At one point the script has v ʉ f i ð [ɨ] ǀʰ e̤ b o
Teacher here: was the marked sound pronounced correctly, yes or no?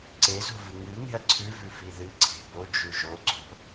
yes